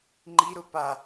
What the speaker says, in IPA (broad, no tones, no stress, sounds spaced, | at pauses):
ŋ͡ǃ i ɾ ʊ p a